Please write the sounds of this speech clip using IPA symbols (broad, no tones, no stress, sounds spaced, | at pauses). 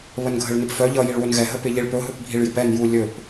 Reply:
β ə n ɡʱ ə ɭ n ɪ p f œ ʎ ʌ j i ɭ w ɵ n ɣ ɛ ɦ ə p ɪ ʎ i ɭ p ɵ ɦ ɵ p bʱ i ɭ j ɪ p ɛ n j u lʲ ɵ p